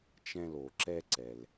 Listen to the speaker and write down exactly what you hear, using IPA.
t͡ʃ ɛ̃˧ l o˩ ǁ ɛ˧ ǀ ɛ˩ l

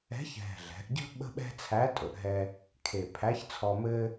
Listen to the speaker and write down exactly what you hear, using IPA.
ɛ̤˧˥ ç ɦ ɛ̤˨˩ ɮ ɛ̤˩˧ ʔ ɟ ə̤˥ ɓ ə̤˥ ɓ ɛ̤˥ t͡sʰ æ˧˥ tʼ ɵ˩˧ ʔ ɦ ɛ˧ | kʰ e˨˩ pʰ æ˧˥ ç t͡sʰ ɔ˧ m ɘ˥

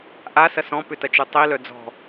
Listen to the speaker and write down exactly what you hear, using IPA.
ʔ a s ɐ s ɔ̃ p ʏ t ɐ t͡ʃ u tˤ i l œ d͡z ɔ̤

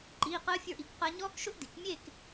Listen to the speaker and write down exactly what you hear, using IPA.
ǃ iː˧˥˧ q əː˥ fʲ ə˞˥˧ ʔ i˥˧ k q ɜ˥ ɲ ɔː˥ k ʃ ʊ˥ ʔ d i˩˥ k mʲ e˥˧ k

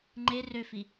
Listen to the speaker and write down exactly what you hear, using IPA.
ŋ͡ǃ e r ø f i

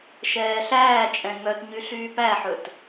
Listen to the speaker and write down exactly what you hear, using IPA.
ʃ ɛː ɬ æː t͡ʃʼ ɛ̃ ŋ œ t ɲ y ɬ yː p æ ħ ɵ t

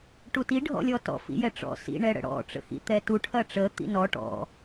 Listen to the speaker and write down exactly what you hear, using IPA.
ʈ u t i ɖʱ ɔ̰ lʲ ɔ t ɔ̰ f ḭ j ɛ ʈ͡ʂ ɔ̰ s ḭ ɳ ɛ ɽ ə̰ ɽ ɔ̰ ʈ͡ʂ ə̰ x ḭ t̪ ɛ t u ʈʰ ɐ ʈ͡ʂ ə t̪ ḭ n ɔ ʈ ɔ̰

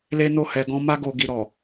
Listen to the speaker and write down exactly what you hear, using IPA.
l e˦ n o˦˨ h ɛ˧ ɡ ɔ̃˦ m a˦ ɡ o˧ ɡ i˧ ɾ ɔ˨

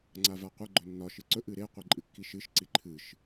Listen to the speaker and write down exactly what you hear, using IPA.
ŋ͡ǀ a v a qʷ ə ɡ͡ǃ ɵ nː ɒ ʃ ɨ ǀ ɵ ʔ ɨ ɾ e qʷ i ǃʼ ɨ kː i ʃ ɨ ʃ ǀ i ǃʰ ɨ ʃ

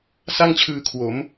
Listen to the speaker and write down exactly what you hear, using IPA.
s a˥˩ ŋ t͡ɕʰ ɯː˧ kʰ w o˩˦ m

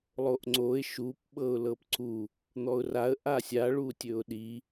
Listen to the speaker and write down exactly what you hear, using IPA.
lˠ o ʔ ŋ͡ǀ o ɪ̯ ʃ u p ɓ ɤ ʊ̯ l ɤ p ǀ u | n̪ ɔ ʊ̯ r a ə̯ ʔ a sʲ a ɭ u tʲ ɵ ʊ̯ ɗ i

